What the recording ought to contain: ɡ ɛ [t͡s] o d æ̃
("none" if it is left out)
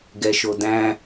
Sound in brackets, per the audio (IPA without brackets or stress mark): ʃ